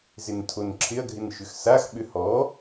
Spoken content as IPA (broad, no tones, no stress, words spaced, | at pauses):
zɪntʰonǁʰɪɐ̯ɡʱɪn ʃʏxsaxɓʏ hɔ